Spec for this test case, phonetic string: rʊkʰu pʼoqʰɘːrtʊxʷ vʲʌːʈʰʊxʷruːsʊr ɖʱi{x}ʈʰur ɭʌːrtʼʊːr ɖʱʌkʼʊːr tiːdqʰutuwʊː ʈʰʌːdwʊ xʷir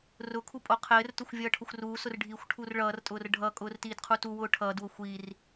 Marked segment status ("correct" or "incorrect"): incorrect